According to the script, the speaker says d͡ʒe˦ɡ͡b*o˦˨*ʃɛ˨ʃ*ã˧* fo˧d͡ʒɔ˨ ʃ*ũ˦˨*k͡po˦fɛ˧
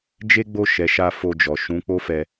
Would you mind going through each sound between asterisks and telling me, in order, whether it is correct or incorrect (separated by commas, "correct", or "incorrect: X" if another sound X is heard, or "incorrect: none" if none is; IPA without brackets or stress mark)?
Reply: correct, incorrect: a˧, incorrect: ũ˨˦